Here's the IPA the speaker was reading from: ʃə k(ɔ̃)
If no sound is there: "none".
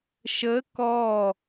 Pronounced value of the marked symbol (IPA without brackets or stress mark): ɔ